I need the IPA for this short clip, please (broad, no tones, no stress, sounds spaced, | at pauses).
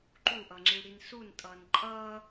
ǃ u ʔ ʌ ŋ͡ǁ i ɽ i n s u n tʼ ʌː n ǃʼ ʌː